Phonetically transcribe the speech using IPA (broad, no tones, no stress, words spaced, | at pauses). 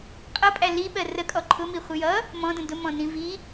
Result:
qʼʌpʼæ liɓɜ rəkʼɔ ǃʰʊmiχʷɪ jʌ | mɔ̃də̃ dʊmɔ̃nĩ vi